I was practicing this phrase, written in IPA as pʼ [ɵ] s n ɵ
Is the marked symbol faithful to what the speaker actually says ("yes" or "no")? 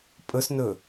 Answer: yes